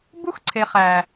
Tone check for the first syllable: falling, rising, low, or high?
high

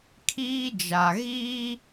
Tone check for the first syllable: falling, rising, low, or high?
high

